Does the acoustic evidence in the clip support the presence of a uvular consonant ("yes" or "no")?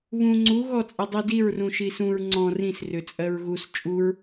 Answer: no